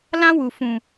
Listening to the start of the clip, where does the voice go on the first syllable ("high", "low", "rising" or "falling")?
high